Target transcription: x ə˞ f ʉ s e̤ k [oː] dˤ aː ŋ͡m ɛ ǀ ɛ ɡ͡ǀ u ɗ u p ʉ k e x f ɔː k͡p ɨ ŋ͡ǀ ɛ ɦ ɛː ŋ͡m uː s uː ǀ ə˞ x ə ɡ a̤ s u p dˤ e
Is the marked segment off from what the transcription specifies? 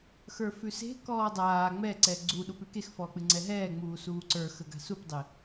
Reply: yes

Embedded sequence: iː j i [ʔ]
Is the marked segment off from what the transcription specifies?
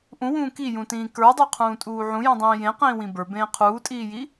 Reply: yes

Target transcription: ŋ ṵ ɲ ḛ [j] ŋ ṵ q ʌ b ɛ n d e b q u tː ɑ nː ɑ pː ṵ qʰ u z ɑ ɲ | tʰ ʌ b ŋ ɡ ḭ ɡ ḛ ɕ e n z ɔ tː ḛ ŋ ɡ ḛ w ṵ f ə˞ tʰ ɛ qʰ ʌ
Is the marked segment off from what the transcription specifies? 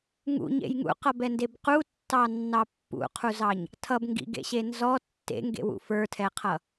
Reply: no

